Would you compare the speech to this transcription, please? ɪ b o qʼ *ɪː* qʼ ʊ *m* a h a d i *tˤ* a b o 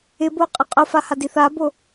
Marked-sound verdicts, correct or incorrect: incorrect, incorrect, incorrect

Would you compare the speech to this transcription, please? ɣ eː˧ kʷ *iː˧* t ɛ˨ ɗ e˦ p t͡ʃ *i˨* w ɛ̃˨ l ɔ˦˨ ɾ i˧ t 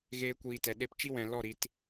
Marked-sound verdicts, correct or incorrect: incorrect, incorrect

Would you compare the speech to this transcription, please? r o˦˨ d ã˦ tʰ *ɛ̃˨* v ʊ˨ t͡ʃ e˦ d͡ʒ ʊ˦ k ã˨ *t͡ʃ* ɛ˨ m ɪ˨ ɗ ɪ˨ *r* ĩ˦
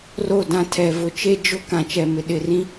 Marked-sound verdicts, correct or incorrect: incorrect, correct, correct

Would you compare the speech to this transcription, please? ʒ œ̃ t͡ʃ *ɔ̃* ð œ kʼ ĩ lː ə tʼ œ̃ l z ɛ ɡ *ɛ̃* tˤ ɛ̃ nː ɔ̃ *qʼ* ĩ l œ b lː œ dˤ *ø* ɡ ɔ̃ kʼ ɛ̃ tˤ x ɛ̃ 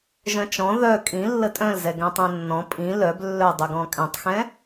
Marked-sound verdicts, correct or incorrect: correct, correct, incorrect, correct

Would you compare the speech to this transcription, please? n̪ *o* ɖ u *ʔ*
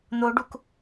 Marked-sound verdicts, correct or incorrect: correct, incorrect

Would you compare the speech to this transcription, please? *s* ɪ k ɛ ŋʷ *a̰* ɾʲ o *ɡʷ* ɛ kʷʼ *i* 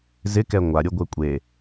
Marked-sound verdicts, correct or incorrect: incorrect, incorrect, correct, incorrect

